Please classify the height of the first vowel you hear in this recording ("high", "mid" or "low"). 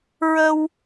mid